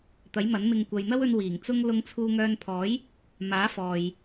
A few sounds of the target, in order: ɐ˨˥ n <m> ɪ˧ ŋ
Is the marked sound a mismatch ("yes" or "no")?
no